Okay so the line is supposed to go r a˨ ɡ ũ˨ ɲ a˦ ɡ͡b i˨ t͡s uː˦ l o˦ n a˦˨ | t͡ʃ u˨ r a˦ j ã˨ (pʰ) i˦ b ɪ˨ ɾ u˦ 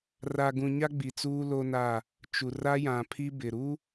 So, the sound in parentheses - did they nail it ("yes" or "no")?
yes